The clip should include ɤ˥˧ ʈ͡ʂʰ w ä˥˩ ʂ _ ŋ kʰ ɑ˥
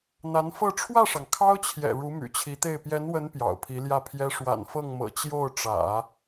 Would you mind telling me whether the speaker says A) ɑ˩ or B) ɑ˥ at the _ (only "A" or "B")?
A